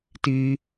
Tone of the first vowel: high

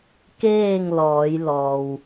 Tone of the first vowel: falling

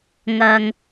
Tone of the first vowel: low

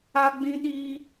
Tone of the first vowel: high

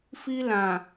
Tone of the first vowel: high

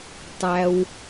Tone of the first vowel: low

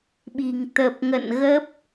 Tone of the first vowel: low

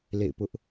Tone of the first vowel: falling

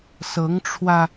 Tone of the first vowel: rising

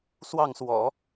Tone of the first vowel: falling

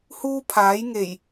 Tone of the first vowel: high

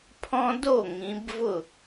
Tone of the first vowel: high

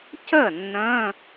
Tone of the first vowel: falling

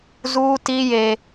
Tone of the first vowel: high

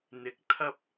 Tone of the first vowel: rising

